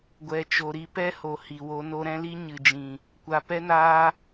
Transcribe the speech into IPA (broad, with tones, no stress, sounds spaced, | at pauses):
ɡʷ ɛ˨ t͡ʃ o˨ ɾ i˧ p ɛ˦ h o˨ h i˨ w o˧ n o˧ ɾ ɛ̃˦ l i˦ ɲ ɨ˨ d͡ʒ ĩ˨ | kʷ a˨ p ɛ˦ n aː˧